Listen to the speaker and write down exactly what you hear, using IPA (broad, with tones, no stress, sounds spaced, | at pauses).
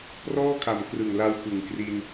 p r ɔː˥˩ kʰ a˨˩ m k r ɯ˨˩ ŋ l a˧ w p ɯ˨˩ ŋ k r i˧ n